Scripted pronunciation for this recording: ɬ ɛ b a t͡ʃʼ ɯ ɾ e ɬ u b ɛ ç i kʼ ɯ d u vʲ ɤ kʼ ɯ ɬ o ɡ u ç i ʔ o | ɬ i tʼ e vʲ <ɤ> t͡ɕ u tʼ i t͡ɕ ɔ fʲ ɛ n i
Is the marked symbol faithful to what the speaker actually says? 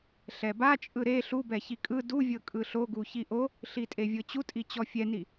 yes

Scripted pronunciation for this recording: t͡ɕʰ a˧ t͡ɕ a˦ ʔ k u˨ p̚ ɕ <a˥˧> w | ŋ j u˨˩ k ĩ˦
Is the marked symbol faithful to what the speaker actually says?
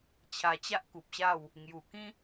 yes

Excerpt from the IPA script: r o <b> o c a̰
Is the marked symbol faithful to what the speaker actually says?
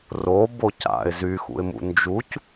yes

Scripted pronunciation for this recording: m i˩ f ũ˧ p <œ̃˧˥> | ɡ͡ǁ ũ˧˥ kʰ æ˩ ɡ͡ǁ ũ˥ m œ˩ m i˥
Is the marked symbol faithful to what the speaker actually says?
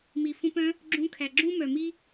yes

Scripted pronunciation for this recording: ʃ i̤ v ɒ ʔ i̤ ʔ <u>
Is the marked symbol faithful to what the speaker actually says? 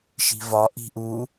yes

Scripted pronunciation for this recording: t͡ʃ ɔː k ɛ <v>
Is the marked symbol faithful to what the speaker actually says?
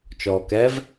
yes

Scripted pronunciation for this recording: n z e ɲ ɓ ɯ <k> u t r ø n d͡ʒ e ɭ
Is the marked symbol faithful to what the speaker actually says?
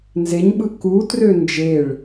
yes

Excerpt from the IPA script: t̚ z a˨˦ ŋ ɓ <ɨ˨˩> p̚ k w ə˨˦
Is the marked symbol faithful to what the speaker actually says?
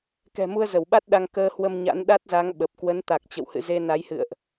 no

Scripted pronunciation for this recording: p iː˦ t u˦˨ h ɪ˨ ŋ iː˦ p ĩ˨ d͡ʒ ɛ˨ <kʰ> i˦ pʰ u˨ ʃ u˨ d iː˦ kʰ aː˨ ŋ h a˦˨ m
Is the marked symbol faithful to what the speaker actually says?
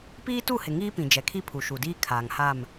yes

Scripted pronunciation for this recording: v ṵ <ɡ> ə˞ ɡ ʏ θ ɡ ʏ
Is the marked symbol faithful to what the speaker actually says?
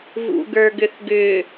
yes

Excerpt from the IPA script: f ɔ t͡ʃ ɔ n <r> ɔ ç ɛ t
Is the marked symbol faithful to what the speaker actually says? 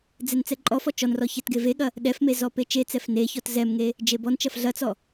yes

